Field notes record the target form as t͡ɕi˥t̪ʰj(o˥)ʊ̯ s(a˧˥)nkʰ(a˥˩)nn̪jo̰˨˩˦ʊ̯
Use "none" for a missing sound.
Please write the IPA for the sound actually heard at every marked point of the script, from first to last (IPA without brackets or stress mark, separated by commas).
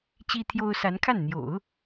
o˥, a˧˥, a˥˩